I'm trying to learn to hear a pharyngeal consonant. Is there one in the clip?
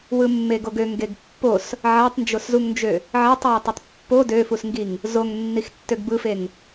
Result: yes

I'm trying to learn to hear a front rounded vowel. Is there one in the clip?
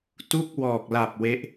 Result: no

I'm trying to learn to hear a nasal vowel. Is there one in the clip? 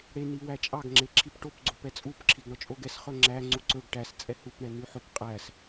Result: no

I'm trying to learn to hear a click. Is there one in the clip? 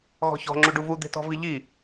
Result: yes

